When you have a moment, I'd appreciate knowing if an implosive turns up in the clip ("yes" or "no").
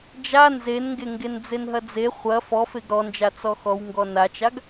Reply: no